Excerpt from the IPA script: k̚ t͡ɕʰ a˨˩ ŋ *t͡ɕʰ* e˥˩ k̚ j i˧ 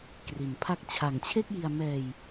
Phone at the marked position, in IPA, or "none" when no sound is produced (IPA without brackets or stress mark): t͡ɕʰ